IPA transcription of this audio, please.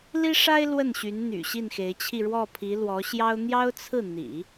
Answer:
l i˥ ʂ a˥ ɪ̯ l w ə˥˩ n ɕ y˧˥ n n̪ y̰˨˩ ɕ i˥˩ n x e˧˥ ɪ̯ t͡ɕʰ i˥˧ ɻ w ɔ˥˩ pʰ i˧˥ l w ɔ˧˥ ɕ j ɑ˥ ʊ̯ n̪ j ɑ˥ ʊ̯ t͡sʰ ɹ̩˥˩ n̪ ḭ˨˩˦

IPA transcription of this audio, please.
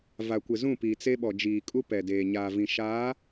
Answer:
v a˨ kʷ ɪ˨ z ũ˦˨ p i˨ t͡s e˦ ɓ ɔ˨ d͡ʒ iː˨ kʼ u˦ p ɛ˨ d eː˨ ɲ aː˨ v ĩ˨ ʃ aː˨˦

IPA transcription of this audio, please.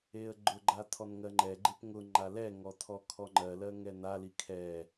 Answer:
e ə̯ ɡ͡ǃ ʊ ɡ͡ǃ a tʰ ɔ n ŋ ɜ ŋ͡ǃ ɛ ɡ͡ǃ e p ŋ ʊ ŋ͡ǃ a l ɛ ŋ ɔ tʰ ɔ kʰ ɔ ŋ͡ǃ ɜ l ɜ ŋ ɛ n a l i kʰ ɛ

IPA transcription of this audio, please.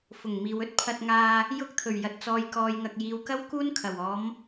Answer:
f ʊ˨˩ ŋ m iː˨ w ɵ˥ t̚ pʰ ɐ˧ t̚ ŋ aː˧ | j ʊ˧ k̚ t̪ʰ ɵ˨˩ ɥ j ɐ˨ t̚ t͡s ɔː˨ j k ɔː˨ j ŋ ɐ˨ k̚ j iː˨˧ w k ɐ˥ w k uː˥ n kʰ ɐ˨˩ w ɔː˨˧ m

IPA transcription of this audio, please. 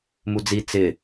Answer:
m u d͡z i t͡s ɪ

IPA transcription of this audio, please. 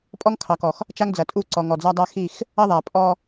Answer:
pʼ ɔ˦ ŋ kʰ ɑ˨ k ɔ˨ x | t͡ʃ a˦ ŋ d͡z ɐ˨ tʼ u˦˨ ǀ ɔ˨ ŋ ɔ˨ d͡z a˦ dˤ a˦ x i˦˨ x | ɐ˦ ðˤ a˨ pʼ ɔ˦

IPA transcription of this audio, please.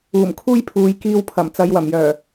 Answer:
uː˨˩ m kʰ uː˥ j pʰ uː˨ j k iː˧ w pʰ ɐ˨˩ m t͡s ɐ˨˧ j w ɐ˨˩ m j œː˨˩

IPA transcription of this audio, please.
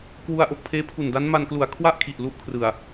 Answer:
k w u˧ a̯ ʔ o˨˩ k̚ pʰ eː˦˥ pʰ u˨˩ n d a˦˥ n m a˧ n k l u˨˩ a̯ kʰ w a˥˩ ʔ kʰ i˨˩ ʔ l u˥˩ ʔ kʰ r ɯ˨˩ a̯

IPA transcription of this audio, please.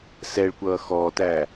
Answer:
s ɛ ɭ kʷ ʌː x ɔː t æː

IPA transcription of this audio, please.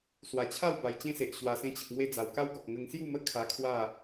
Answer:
s w a˨˩ t͡ɕʰ a˥˧ w b a˨˩ j t͡ɕ ẽ˦ s e˨ ʔ ɕ w a˨˩ s ẽ˧ t͡ɕ ə˨ k̚ ŋ w e˧ d͡z a˨˩ w k a˦ w ɡ ɔ˨ k̚ ŋ ə˧ ŋ s j u˥˧ m ə˦ kʰ a˧ kʰ w a˥˧

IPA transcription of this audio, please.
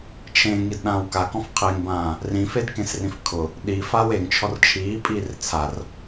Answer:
t͡ʃʰ ẽ ŋ i d ɗ ãː w k a k ɔ̃ f qʰ e ŋ b ãː | r ĩ f e d k ẽ s r ĩ f kʰ ʊ | ɗ i f aː w e ŋ t͡ʃʰ ɔ r t͡ʃʰ iː pʼ iː r t͡sʰ a r

